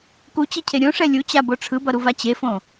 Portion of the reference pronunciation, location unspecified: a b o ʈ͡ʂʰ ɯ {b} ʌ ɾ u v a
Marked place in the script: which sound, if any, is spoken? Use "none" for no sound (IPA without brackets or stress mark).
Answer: b